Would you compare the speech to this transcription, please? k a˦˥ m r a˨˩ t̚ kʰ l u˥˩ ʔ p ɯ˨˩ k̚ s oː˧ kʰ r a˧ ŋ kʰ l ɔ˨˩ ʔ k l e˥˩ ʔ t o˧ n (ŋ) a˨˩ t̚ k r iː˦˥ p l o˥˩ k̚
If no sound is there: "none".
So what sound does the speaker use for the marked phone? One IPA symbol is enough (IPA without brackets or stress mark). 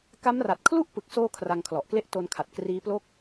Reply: kʰ